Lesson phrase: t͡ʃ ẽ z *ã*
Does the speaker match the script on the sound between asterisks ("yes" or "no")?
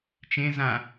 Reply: yes